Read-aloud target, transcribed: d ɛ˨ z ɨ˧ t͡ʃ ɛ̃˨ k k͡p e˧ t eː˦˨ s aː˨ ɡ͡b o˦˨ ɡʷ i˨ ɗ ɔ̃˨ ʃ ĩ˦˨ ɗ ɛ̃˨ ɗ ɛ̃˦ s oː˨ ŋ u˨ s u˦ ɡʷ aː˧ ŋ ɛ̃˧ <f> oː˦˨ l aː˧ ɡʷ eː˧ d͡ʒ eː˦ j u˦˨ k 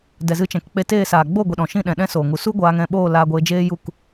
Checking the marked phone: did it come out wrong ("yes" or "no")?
yes